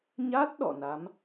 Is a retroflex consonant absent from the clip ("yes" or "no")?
yes